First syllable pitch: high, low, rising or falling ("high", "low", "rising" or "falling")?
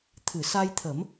low